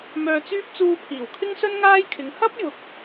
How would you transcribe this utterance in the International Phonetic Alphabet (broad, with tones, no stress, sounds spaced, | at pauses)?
m œː˧ t͡s yː˥ p̚ t͡s uː˧ pʰ iː˨˩ w kʰ ɪ˥ ŋ s ɵ˥ n ŋ aː˥ j kʰ ɪ˨˧ ŋ h ɐ˥ p̚ j ʊ˨ k̚